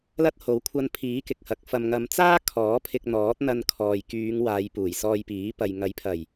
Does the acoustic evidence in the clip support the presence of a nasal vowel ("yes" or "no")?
no